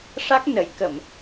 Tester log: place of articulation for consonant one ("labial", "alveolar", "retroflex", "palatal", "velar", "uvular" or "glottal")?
retroflex